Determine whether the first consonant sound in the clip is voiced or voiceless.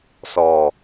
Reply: voiceless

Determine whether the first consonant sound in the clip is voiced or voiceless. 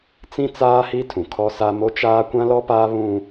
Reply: voiceless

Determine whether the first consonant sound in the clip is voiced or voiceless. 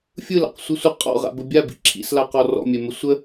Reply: voiceless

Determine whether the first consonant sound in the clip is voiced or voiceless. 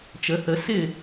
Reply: voiceless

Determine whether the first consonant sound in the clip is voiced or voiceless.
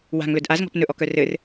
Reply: voiced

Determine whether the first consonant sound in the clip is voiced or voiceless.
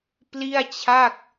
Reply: voiceless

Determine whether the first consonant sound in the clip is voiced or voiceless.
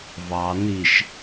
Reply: voiced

